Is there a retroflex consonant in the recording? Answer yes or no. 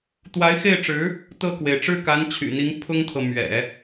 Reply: yes